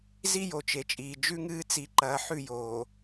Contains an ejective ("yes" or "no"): yes